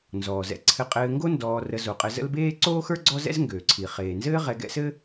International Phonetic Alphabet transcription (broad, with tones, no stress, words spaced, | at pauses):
nzɔː˩zɛ̰˨ ǀʰɘ˨qʼɘː˨ŋɡo˦ ndɔː˨rə˨zo˩ qʼɘ˨zə̰˦lbeː˥ ǀoː˥xə˞˥ ɡ͡ǀɔ˥zɛ̰˥zŋɡøː˩ǀʰi˩ χeː˩nzɘː˦ʁɛ˨ ɡɛ̰˦sɘ˥